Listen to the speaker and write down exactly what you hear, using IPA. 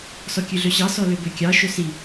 s ɔ kʲ ʉ ɮ ø ɕ ɑ s ɔ l ø b ø kʲ ɑ ʃ ɵ s i

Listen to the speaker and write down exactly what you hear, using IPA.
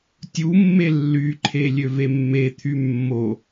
tʲ u mː e lː y ǃʰ e lʲ ø v e mː e t̪ʰ y mː o

